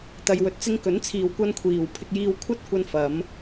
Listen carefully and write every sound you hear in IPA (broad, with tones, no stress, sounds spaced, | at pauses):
t̪ ɐ˨ j w ɵ˨ t̚ t͡s ɪ˧ ŋ k ɵ˨˥ n t͡sʰ iː˨ w kʷ ɐ˧ n kʷʰ iː˨ w pʰ ɪ˧ k̚ j iː˧ w kʷʰ ɐ˥ t̚ kʷ ɐ˧ n f ɐ˨˧ m